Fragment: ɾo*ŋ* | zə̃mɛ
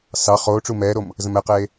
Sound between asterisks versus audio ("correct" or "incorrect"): incorrect